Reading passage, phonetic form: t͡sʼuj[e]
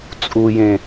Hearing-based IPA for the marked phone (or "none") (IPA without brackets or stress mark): ẽ